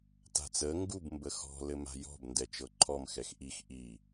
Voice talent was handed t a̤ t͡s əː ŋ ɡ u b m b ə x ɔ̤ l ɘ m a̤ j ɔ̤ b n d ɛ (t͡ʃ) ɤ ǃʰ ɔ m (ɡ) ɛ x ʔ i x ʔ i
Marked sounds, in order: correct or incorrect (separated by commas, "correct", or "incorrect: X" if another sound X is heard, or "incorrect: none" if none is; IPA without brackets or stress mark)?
correct, incorrect: x